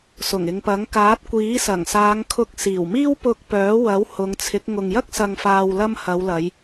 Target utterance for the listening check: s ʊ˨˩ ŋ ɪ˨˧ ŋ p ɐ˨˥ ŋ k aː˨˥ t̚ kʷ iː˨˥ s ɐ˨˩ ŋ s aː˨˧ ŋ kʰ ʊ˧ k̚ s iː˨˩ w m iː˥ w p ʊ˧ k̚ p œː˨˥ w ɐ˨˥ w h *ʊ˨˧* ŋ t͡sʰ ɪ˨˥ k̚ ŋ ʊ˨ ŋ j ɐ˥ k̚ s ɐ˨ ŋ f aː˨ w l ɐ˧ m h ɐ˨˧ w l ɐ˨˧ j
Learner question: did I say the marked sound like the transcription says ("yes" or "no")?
yes